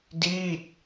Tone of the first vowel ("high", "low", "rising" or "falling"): falling